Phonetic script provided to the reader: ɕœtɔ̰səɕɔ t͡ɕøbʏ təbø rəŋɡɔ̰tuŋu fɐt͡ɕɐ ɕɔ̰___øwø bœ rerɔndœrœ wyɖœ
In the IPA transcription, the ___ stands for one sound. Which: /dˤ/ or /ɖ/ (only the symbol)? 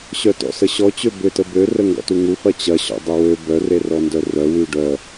dˤ